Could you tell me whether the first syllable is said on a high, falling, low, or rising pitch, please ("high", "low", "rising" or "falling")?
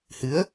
rising